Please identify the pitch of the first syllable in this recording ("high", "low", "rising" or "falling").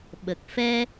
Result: low